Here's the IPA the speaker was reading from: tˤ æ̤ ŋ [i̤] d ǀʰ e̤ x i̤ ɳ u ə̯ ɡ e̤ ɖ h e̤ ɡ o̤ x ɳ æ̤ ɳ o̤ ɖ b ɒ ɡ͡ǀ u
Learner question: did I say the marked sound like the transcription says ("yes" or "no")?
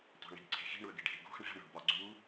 yes